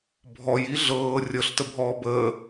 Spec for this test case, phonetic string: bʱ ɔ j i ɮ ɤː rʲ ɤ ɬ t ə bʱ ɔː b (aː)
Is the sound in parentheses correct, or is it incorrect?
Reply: incorrect